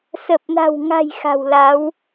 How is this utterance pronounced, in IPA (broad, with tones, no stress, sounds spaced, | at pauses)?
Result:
s ə˨˩ p̚ n a̤˨˩ w ŋ a̤˨˩ j x a̤˨˩ w l a˨˦ w